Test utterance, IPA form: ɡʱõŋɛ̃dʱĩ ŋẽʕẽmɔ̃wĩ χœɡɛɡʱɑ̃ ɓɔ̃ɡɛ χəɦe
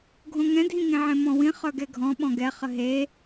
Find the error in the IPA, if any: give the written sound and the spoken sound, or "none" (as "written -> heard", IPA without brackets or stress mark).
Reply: ɑ̃ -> ɔ̃